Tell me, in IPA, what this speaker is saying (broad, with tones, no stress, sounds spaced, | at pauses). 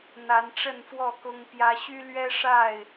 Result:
n̪ a˨˦ n ʈ͡ʂ ə˥˨ n f w ɔ˥˨ k ʊ˦ ŋ p j ä˦ ɕ y˦ l ɥ ɛ˦ ʂ a˥˨ ɪ̯